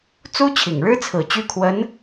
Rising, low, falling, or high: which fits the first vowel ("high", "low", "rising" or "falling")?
high